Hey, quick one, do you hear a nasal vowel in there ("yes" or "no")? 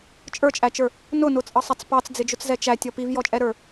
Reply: no